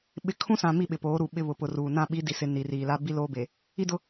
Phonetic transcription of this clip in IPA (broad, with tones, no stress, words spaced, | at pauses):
ɓɪ˨kʰũ˦sã˨ mi˦˨ɓɪ˨poː˨˦ ɾu˨ ɓɪ˦βʊ˨ pʊ˨ruː˨nã˦˨ ɓi˨˦di˨sɪ˨ ni˨riː˨ la˦ bi˦loː˦be˨ | i˦dʊ˦